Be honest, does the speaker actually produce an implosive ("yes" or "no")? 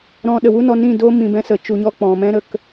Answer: yes